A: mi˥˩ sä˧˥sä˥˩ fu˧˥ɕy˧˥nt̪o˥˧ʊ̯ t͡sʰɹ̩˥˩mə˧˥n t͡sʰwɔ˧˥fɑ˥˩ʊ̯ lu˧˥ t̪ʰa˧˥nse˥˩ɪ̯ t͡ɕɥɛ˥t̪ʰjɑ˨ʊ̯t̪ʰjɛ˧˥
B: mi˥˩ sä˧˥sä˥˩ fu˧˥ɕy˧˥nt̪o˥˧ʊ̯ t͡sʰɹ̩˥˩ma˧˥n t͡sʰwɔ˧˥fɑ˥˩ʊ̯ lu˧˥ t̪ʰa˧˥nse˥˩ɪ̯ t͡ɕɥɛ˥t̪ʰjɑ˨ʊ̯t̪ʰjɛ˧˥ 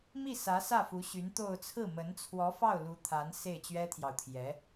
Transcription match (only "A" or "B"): A